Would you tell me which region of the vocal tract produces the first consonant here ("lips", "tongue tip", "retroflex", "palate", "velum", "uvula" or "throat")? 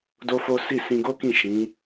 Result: tongue tip